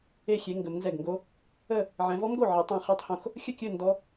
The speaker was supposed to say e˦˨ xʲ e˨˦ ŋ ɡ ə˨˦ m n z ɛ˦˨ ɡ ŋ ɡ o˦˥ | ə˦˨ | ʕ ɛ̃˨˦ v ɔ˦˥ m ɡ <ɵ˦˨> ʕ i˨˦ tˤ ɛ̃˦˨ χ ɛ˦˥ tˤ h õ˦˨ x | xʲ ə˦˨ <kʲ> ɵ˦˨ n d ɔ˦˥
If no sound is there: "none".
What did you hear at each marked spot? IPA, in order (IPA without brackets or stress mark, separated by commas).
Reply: o˦˨, kʲ